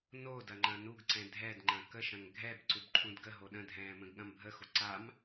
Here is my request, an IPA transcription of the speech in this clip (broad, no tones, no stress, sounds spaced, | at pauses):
n o d ɐ ŋ͡ǃ ɐ̃ n u ɡ ǀ ɛ̃ dʱ ɛ d ŋ͡ǃ ɐ̃ k ə ʃ ɐ̃ ŋ ɡʱ ɛ b ǀ u b ǃʰ ũ d ɡ ə ɦ o ɗ ə̃ dʱ ɛ̃ː m ə̃ ɡ ɠ ɐ̃ m bʱ ə x o ǀ a m